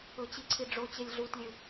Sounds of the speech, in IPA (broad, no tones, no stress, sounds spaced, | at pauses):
ɵ t͡ɕ i ǀʰ i ɖ͡ʐ o t͡ɕ e lʲ ɮ u t lʲ ɨ